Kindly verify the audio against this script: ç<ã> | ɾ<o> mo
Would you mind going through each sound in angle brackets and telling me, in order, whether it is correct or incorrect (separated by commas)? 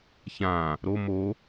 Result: correct, correct